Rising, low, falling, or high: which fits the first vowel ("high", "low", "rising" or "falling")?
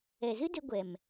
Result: low